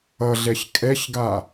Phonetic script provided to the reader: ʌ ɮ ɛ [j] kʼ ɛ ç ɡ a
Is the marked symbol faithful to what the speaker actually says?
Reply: no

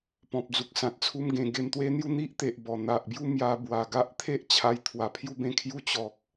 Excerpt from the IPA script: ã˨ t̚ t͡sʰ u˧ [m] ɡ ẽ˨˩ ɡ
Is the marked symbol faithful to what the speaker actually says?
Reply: yes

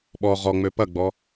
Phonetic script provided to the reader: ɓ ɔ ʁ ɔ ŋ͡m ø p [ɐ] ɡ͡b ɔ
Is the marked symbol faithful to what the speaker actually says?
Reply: yes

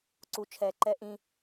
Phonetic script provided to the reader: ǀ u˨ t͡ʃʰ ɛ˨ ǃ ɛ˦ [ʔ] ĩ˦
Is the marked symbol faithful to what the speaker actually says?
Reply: yes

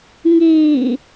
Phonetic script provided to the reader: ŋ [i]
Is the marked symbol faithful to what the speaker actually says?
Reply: no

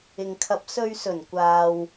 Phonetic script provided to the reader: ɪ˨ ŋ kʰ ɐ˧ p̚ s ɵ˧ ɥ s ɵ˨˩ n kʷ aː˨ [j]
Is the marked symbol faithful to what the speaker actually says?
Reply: no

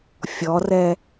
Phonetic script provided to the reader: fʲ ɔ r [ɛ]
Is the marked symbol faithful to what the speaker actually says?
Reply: yes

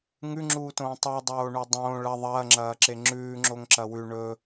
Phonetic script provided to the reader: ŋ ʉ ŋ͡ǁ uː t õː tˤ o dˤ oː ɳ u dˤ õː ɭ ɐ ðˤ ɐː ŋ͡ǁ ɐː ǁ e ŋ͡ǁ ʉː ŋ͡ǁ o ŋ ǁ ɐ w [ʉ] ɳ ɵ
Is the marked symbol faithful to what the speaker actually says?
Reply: yes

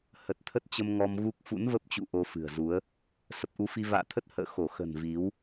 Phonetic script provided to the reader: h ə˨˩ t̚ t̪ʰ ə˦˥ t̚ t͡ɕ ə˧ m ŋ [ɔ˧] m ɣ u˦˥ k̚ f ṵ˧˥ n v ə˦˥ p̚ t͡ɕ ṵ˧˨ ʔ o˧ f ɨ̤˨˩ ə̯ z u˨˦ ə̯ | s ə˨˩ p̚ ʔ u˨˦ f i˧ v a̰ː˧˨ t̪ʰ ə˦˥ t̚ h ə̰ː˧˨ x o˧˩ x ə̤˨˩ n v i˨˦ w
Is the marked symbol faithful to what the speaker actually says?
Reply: yes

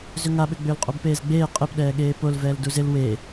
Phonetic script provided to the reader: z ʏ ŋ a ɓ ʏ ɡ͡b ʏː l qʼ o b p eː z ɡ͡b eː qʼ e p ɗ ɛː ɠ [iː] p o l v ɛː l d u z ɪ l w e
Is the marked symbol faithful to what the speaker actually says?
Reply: no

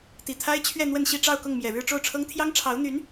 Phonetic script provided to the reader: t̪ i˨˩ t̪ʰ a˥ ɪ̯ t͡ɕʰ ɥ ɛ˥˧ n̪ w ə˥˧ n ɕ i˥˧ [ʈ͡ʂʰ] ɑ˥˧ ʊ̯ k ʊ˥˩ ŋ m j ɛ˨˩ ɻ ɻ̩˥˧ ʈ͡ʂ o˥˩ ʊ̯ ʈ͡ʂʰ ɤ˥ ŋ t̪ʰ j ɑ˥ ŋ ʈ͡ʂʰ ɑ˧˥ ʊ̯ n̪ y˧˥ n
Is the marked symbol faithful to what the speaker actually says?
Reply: no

